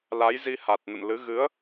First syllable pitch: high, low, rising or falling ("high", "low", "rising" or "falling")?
rising